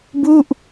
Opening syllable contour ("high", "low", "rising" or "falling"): falling